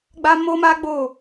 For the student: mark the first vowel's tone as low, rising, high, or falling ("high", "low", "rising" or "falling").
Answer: high